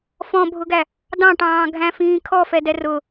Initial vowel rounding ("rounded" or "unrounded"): rounded